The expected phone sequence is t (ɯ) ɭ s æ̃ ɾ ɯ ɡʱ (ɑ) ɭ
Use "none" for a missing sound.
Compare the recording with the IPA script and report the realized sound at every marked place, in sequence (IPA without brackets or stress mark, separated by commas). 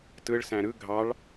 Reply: ɯ, ɑ